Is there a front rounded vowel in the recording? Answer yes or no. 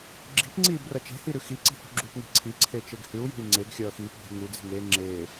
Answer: no